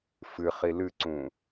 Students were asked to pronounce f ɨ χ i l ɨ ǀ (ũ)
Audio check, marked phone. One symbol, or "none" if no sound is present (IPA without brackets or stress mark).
ũ